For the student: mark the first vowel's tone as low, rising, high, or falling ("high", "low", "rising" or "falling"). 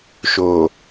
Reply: low